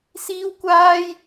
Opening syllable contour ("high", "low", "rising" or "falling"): high